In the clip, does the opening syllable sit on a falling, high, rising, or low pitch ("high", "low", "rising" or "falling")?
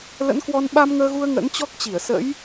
rising